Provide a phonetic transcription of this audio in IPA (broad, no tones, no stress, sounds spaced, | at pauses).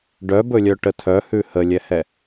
ɖ œ b ɵ lʲ œ ʈ ə tʰ œ h ʉ h ə lʲ ɛ h ɛ